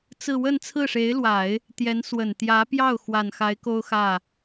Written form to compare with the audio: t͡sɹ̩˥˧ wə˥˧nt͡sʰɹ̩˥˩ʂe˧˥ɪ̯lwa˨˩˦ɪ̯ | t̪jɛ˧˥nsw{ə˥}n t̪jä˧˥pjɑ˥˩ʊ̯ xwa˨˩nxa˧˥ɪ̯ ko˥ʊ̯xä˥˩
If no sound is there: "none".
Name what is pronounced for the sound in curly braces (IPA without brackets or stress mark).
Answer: ə˨˩